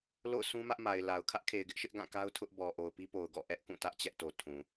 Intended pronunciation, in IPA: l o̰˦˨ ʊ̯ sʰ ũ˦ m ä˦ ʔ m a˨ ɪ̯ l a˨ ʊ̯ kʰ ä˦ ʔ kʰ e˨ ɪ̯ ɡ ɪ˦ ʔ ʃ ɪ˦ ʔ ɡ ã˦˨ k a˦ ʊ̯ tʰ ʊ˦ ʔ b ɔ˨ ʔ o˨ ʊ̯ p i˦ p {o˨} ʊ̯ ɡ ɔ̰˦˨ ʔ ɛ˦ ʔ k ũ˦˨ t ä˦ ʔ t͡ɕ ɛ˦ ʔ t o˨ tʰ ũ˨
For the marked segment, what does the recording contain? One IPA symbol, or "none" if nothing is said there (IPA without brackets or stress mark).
o˨